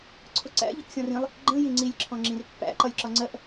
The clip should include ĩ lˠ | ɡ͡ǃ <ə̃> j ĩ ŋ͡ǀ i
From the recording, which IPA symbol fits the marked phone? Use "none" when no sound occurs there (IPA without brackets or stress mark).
ə̃